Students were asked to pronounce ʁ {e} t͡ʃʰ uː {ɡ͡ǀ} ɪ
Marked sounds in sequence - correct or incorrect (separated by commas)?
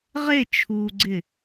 correct, correct